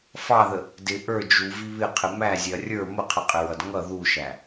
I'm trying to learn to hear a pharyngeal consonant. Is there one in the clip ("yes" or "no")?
no